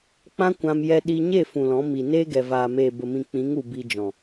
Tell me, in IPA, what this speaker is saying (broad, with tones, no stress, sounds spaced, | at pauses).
k͡p ã˦ kʷ ã˧ m j ɛ˧ ɗ i˧ ɲ e˦˨ f ũ˨ l ɔ̃˨˦ m i˨ n eː˦ ɡ ɛ˨ v aː˨ m eː˨ b ə˨ m ĩ˨ k͡p ĩ˨˦ ŋ u˨ b i˧ d͡ʒ ɔ̃˨